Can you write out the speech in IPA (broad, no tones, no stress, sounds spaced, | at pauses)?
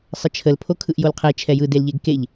sˤ ə t͡ʃʰ ə l pʰ o kʰ ɯ ʔ j o l qʰ e t͡ʃʰ ɛ j ɯ d e l ʎ e ɡ k e ʎ